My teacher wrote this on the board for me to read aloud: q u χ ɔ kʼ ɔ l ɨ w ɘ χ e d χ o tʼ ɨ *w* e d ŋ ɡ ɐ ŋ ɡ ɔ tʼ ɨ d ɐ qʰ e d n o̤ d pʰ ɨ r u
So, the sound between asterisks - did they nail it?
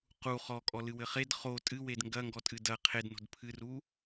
yes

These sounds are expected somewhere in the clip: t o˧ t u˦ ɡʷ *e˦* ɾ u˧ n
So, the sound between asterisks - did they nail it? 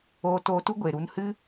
no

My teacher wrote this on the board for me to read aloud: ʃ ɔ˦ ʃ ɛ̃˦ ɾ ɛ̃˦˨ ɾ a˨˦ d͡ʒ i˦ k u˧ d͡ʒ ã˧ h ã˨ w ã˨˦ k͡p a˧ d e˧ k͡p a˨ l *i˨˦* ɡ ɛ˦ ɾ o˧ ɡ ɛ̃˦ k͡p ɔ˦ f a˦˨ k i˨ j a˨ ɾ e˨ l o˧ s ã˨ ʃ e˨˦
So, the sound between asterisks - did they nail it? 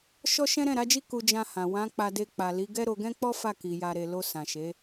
yes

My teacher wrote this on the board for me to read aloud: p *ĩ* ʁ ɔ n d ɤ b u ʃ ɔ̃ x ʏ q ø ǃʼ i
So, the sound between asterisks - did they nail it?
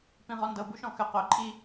yes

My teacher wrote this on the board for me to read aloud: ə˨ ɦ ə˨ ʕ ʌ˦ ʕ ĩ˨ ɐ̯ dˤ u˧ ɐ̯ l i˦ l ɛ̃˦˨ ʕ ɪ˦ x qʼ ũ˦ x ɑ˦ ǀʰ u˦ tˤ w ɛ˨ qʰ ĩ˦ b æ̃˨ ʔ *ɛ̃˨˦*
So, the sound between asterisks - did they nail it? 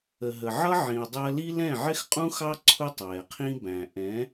yes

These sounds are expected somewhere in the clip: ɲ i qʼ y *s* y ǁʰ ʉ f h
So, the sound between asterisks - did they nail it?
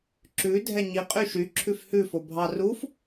no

